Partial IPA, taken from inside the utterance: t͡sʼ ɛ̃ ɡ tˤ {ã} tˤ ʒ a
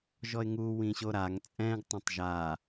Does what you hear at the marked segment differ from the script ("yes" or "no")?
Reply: no